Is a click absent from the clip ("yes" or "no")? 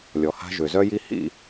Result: yes